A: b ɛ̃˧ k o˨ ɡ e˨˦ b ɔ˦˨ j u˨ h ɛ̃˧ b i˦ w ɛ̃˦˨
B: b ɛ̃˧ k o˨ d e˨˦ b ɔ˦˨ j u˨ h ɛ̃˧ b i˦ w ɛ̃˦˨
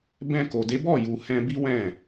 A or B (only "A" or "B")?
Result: B